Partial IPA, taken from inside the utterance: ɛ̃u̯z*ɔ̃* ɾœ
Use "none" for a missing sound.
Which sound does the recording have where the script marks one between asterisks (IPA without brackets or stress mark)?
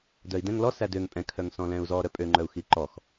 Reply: ɔ